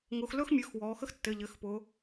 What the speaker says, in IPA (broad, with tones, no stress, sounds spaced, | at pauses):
ŋ ʊː˩˧ x l ɵː˥ x mʲ ɵː˩˧˩ x w ɔː˩˧ x ə˥ x tː ɘ˩˧˩ ʎ ɘ˩˧ x p ʊ˩˧